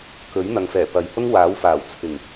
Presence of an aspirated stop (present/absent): present